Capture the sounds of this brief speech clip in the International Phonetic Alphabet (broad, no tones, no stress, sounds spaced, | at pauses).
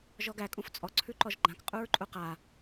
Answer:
ʒ ɔ ɡ æ kʼ ũ f t͡sʼ ɔ ǀʰ ʉ ǃ ɔ ʒ ɡ͡ǃ ã k qʼ u ɹ ǃʼ u q a